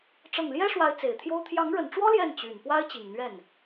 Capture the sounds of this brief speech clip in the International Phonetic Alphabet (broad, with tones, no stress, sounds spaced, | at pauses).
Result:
ʈ͡ʂ ɤ˥˩ ŋ l j ɛ˥ ʂ w a˧˥ ɪ̯ t͡s e˨˩ ɪ̯ t̪ʰ j o˥ ʊ̯ t̪ʰ j ɑ˧˥ ŋ ɻ ə˨˩ n ʈ͡ʂ w ɔ˥ l j ɛ˥˩ n t͡ɕ y˨˩ n p w a˥ ɪ̯ t͡ɕ i˨˩ ŋ n̪ ɥ ɛ˥˩ n